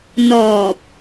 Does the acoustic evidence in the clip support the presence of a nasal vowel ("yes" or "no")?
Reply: no